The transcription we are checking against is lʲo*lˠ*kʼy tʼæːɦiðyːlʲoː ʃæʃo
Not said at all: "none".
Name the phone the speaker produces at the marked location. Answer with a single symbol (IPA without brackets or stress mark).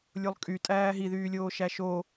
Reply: lˠ